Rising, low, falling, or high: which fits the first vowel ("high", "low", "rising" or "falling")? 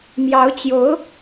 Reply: rising